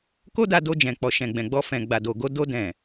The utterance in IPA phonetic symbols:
k o˦ d a˧ d o˧ d͡ʒ ɛ̃˨ k͡p ɔ˨ ʃ ɛ̃˨ ɡ͡b ɛ̃˨ ɡ͡b ɔ˧ f ɛ̃˨ ɡ͡b a˨ d o˨ ɡ o˧ d o˧ d ɛ̃˨

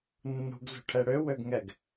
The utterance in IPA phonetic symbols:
nː ṳ ɡ z ṳ ʈʰ ɛ ɽ ø w ø ɡ ŋ ɛ ɡ

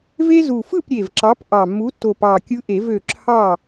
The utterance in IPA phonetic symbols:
v e˦ z u˨˩ f ɯ˥˨ p ɾʲ e˨˩ v ǁ ɑ˨˥ p ʔ ɑ˨˩ mː u˨˥ tː o˨˩ p ɑ˨˩ kʲ ɯ˦ ʔ e˨˩˦ v ø˨˩ ǁʰ ɑ˥˨

